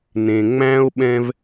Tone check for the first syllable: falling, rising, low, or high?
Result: low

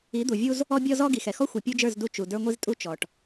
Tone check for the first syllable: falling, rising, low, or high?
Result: rising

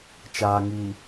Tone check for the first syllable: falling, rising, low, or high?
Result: low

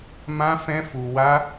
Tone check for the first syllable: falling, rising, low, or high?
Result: high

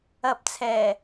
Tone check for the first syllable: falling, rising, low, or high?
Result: low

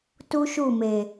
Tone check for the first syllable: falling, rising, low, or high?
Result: high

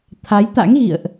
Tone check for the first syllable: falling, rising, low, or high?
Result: rising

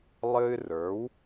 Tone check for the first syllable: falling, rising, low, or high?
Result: high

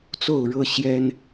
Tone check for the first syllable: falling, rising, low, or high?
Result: falling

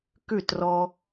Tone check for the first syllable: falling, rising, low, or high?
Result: falling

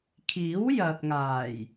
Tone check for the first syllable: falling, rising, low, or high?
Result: rising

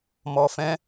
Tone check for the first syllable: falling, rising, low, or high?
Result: low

